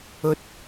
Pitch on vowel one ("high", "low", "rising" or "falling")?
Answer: low